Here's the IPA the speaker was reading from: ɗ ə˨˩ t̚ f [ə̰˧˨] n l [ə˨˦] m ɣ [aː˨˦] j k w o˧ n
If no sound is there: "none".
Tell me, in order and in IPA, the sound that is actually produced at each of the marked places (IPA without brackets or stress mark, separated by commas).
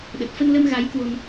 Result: ə˧, ə˧, a˨˦